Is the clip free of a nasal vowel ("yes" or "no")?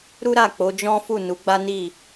no